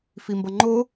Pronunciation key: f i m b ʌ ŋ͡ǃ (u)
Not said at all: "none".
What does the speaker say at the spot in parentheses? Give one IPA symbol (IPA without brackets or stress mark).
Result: o